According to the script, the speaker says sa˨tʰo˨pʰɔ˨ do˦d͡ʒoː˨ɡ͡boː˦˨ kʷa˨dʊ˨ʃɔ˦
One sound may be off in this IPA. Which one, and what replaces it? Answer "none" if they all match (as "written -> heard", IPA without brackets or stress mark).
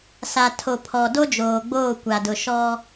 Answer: none